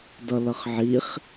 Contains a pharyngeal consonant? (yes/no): yes